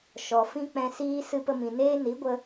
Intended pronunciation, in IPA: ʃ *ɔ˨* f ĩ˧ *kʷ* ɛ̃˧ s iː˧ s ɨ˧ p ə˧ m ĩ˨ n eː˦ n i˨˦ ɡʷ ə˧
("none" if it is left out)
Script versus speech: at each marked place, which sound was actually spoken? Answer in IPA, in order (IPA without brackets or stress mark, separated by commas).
ɔ˨, k͡p